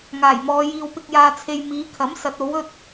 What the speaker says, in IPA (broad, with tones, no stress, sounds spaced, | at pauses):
ŋ aː˨˩ j m ɔː˨˧ j iː˧ w p ɪ˧ k̚ j aː˧ t͡sʰ e˧ j m iː˨˧ kʰ ɐ˨˥ m s ɐ˨˥ t̚ o˨˥ w ɵ˥ t̚